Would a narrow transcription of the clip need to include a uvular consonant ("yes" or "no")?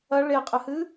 yes